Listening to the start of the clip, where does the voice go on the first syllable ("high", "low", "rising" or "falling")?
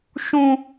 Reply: high